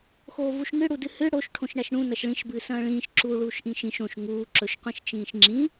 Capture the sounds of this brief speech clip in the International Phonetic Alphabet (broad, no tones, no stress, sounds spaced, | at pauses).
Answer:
x oː v u ʃ ŋ ɨ ɽ u d ɨ h ɨ ɽ o ʃ ʈʰ õ ʃ ɳ a ʃ ɳ ũ n ɐ ʃ ɭ ĩ ʃ b ɨː s ɐ̃ː ɭ ĩː ʃ ǁ uː ɭ uː ʃ ʔ ĩ ʃ ĩ ʃ õ ʃ ŋ uː ǁ ɵ ʃ qʷ ĩ ʃ t͡ʃ ĩː ʃ ŋ͡ǁ ĩ